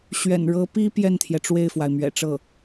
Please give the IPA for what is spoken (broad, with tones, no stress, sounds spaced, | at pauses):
ɕ ɥ ɛ̰˨˩ n ɻ ɤ˧˥ p i˥ p j ɛ˥˩ n t̪ʰ j ɛ˩ ʈ͡ʂ w e˥˩ ɪ̯ f w a˩ ɪ̯ m ɥ ɛ̰˨˩ ʈ͡ʂ ɤ˥˩